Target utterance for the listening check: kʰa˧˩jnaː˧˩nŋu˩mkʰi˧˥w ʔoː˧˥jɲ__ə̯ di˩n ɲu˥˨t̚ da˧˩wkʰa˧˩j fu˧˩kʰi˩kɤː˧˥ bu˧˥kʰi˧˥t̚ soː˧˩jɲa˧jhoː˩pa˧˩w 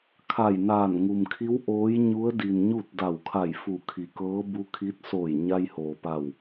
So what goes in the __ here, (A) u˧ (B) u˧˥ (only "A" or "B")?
B